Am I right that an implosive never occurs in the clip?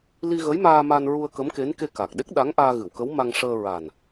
no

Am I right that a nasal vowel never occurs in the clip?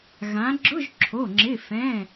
no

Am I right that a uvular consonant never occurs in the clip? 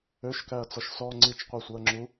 no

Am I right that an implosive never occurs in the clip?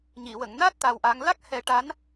yes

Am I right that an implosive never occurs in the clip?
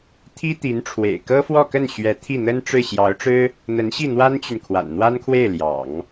yes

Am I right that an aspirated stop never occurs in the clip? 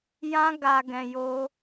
yes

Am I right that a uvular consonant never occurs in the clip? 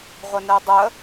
no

